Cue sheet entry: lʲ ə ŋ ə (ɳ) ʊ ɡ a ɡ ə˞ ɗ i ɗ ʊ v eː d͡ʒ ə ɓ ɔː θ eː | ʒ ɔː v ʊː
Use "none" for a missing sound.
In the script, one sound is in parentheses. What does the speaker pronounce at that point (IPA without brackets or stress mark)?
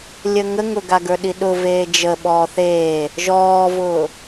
ŋ